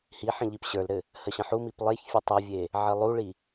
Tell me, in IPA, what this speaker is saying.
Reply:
hiħə̃ ʎipɕə˞lɾɘ | həɕə̃ħumip lˠeçfʲɘ tˤəvʲe | ʕɘlˠuɭi

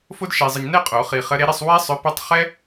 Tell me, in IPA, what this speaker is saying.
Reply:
fo˥dʃe˧zˤə˧ɲ nɛ˥˧qʼo˨˩˦ χi˧ χə˧˥ɾe˧˥ɾe˥˧sˤ wɛ˥sˤʏ˧˥ pə˥tˤ χɛ˥

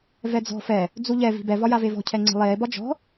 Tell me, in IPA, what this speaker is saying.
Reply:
vɛd͡zɔ̤ fɛ | d͡zuʎɛ vi̤bɛ vɒjavevɔ̤ cʰɛŋ͡ǀɛ̤lˠeː bɒd͡ʒɔ̤

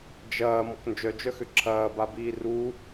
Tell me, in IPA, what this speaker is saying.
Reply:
d͡ʒɐː mɔknd͡ʒœd͡ʒœxʏ ǁʰɐːbabiː ru

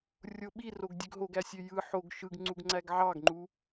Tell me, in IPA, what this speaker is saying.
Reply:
rʲoɓiroɡ dʲøɡɦoɡæsʲø jɯ ħoɡ ʃɯɡŋ͡ǀuɡŋ͡ǀæɡ ʕɑɡŋ͡ǃu

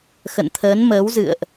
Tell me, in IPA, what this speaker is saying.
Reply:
xə̰˧˨nt̪ʰəː˨˦nməː˨˦wzɨ̰˧˨ə̯ʔ

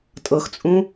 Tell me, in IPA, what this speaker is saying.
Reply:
tʼɤxt͡sʼũ

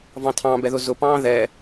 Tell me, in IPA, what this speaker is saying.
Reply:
vɑ̃tʰɑ̃bɛðʊ zʊpɑ̃ː ðɛ

